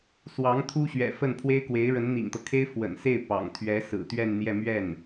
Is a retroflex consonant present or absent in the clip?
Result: present